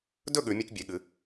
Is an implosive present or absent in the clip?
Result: present